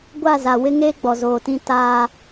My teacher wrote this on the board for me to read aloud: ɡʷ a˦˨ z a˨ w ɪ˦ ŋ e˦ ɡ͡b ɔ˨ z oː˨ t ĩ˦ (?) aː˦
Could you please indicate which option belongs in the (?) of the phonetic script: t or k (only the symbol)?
t